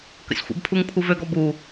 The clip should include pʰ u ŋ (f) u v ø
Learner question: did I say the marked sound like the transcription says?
no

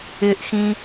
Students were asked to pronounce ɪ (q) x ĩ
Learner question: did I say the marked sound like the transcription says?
no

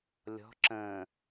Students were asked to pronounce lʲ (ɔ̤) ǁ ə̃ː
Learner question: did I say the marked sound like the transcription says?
yes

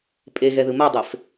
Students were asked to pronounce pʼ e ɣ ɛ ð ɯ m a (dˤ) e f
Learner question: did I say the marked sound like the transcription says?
yes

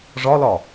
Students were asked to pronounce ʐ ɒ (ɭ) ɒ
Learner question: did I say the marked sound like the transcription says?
no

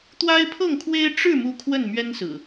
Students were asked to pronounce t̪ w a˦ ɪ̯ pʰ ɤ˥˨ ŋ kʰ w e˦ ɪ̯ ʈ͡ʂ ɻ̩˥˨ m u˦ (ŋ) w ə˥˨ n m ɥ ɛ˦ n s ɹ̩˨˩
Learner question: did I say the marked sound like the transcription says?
no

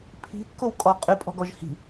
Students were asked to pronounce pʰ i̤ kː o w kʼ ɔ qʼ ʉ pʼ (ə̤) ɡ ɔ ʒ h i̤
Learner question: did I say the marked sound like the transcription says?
no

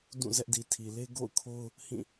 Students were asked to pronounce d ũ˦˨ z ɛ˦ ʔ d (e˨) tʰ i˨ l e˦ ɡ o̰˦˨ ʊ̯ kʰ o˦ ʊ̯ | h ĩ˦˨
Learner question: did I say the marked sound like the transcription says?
no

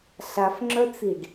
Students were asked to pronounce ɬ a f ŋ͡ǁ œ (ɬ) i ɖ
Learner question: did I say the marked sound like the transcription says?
no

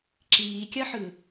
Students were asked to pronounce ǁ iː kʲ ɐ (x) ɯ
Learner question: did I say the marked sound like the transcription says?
no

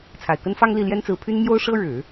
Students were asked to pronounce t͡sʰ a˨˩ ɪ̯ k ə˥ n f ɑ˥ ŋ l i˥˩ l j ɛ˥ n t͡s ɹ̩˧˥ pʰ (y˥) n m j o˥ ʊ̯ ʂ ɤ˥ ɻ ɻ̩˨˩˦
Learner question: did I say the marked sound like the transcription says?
yes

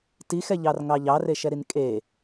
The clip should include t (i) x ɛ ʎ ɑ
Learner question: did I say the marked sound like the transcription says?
yes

